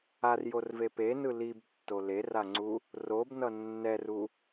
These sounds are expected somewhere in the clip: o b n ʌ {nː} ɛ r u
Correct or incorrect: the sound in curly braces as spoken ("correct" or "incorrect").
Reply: correct